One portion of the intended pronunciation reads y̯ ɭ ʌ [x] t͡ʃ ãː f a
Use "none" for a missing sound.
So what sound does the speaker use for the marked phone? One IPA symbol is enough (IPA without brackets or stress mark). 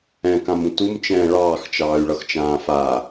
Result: x